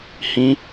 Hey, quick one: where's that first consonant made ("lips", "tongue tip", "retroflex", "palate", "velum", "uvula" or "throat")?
throat